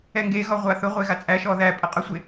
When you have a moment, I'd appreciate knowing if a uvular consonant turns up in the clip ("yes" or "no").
yes